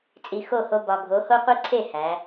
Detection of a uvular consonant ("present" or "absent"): present